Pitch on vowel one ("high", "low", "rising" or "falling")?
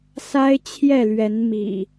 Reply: high